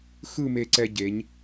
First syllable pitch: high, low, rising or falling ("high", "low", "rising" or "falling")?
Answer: falling